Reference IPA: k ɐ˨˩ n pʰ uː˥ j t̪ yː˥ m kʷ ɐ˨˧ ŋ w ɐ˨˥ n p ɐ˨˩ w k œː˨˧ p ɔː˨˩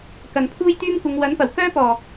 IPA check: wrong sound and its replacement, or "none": œː˨˧ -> œː˥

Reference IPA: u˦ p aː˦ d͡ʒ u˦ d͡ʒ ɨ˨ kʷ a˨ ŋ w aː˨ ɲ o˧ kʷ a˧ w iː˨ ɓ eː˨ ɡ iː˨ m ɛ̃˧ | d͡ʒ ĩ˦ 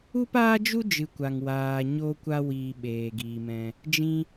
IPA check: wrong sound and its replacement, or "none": none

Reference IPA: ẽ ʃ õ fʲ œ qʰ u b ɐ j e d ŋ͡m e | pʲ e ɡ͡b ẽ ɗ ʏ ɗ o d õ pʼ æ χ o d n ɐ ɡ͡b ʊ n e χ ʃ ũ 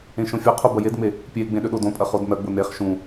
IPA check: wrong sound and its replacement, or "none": æ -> ɐ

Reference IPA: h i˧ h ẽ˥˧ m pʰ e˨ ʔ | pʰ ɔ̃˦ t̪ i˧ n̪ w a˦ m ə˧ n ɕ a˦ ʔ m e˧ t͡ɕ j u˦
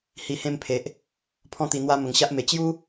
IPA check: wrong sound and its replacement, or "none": n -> ŋ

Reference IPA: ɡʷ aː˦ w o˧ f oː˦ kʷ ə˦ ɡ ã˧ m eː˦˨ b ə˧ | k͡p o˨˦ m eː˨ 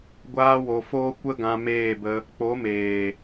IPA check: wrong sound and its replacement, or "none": none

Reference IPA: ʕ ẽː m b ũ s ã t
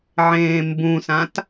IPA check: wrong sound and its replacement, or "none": none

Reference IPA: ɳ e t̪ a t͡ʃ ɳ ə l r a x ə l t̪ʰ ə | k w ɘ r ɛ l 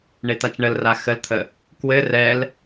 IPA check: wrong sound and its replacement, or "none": none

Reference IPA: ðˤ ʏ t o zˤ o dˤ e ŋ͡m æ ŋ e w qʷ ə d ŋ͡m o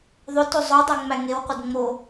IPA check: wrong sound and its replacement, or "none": none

